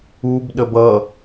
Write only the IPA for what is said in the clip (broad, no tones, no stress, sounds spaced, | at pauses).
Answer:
u b ɗ ə b ʌ